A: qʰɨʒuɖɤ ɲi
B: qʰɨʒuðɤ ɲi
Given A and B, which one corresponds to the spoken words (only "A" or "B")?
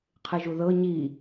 B